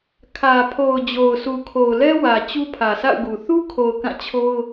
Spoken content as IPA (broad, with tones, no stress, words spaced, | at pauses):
kʰä˨pʰo˨ʊ̯ d͡ʑo˨ʊ̯sʰu˨kʰo˨ʊ̯lɛ˦ wä˨ t͡ɕu˦pʰä˨sʰa̰˦˨ʊ̯ɡu˨ θu˦kʰo˨ʊ̯ kã˦˨t͡ɕʰo˦ʊ̯